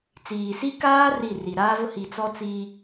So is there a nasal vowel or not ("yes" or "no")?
no